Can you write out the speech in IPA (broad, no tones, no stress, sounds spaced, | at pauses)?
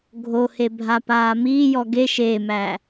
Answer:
ɡʱ o h e bʱ a p aː m iː j ɔ ɡ e ʃ e m æ